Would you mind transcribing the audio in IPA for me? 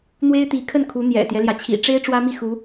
n̪ w e˥ ɪ̯ t̪ i˧˥ kʰ ə˥˩ n kʰ u˧˥ n̪ j ɛ̰˨˩ t̪ j ɛ˦ l j ä˩ t͡ɕʰ ḭ˨˩ ʈ͡ʂ e˥ ɪ̯ ʈ͡ʂ w ä˥ m i˥˩ x u˧˥

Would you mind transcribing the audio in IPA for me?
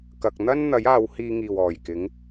k ɐ˨ k̚ n̪ ɐ˥ n n̪ ɐ˨˥ j aː˨˧ w h iː˧ ŋ iː˨˩ w ɔː˨˩ j k ɪ˨˥ ŋ

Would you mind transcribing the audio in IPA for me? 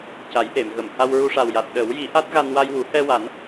c a˨˩˦ j ʔ e˨˩˨ m ɣ ə˨˩˨ m h a˧ w ɹ u˧ ʂ a˨˩ w j a˨˩ t̚ ɗ ə˨˩˦ w j i˨˩˦ ʔ a˦˥ t̚ ɣ a˧ n w a˧ j w u˨˩˦ h ɛ˧ w a˨˩˦ n

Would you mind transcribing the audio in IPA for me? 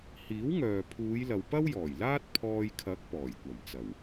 h iː˨˥ w ŋ œː˨ pʰ uː˨˧ j l ɐ˨ w p ɐ˥ w j ɔː˨˩ j l aː˥ t̚ pʰ ɔː˧ j kʰ ɐ˨˥ k̚ p ɔː˨˩ j kʷ ɐ˨˩ m t͡s ɐ˨˩ w

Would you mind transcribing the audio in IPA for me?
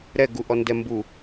ɾ ɛ ɡ u ʔ ɔ n d ɛ m b u

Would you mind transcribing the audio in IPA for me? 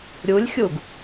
ɾʲ u lʲ xʲ u ɡ

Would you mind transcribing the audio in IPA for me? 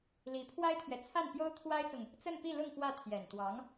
l i˧˥ pʰ w a˥ ɪ̯ t̪ʰ ɥ ɛ˨ t͡sʰ a˥˩ n p j o˥ ʊ̯ t̪ʰ w a˥ ɪ̯ t͡s ʊ˨ ŋ | t͡s ə˥˧ n p i˥˧ l ʊ˥˧ ŋ f w ä˥˩ t̪ʰ j ɛ˨˩ n t̪ w ɑ˧˥ ŋ

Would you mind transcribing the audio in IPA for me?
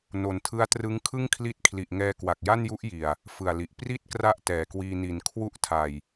n o˨˩ n tʰ ɯ˦˥ a̯ t r ɯ˦˥ ŋ kʰ ɯ˥˩ ŋ kʰ l i˦˥ t̚ kʰ l i˨˩ ʔ ŋ ɛː˧ k w a˨˩ k̚ j a˥˩ n j u˦˥ ʔ j i˨˩ a̯ | f ɯ˨˩ a̯ l i˨˩ ʔ p r i˥˩ t̚ k r a˥˩ ʔ t ɛː˨˩ k w iː˧ n i˨˩ n kʰ w u˦˥ ʔ tʰ a˨˩ j

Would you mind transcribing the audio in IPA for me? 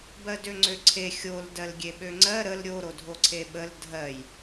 b ɜ d ø ŋ͡ǀ ø ǀʰ e xʲ o l d ɜ l ɡʲ e ɓ ø ŋ͡ǀ ɜ ɾ ə l ɾʲ o ɾ o dʱ o ǀʰ e ɓ ə l dʱ ɜ j

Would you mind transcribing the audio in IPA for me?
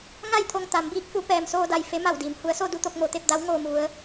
ŋ a˥˨ j t̪ʰ o˧ ŋ t̪ a˩˧ m b iː˧˥ k̚ f u˧˥ p ɛː˩ m s oː˧ d a˩ j f e˧˥ m a˧˩ w d iː˩ m h u˩˧ ə̯ s o˧ d u˩ t̪ o˥˨ k̚ m o˩ t̪ e˥˨ p̚ d a˧˥ w ŋ oː˧ m u˩˧ ə̯

